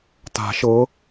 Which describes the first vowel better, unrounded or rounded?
unrounded